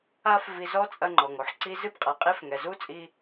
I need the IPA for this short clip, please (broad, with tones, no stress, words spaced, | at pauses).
a˦fvi˧ zɔ˦t͡sʼɐ˧ŋ͡ǃɔ˨ŋ o˦ħǀi˦ zɨ˦bqʼa˨qʼe˦f ŋɛ˨zu˦t͡sʼi˧